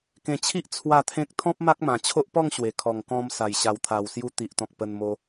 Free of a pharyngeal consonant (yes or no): yes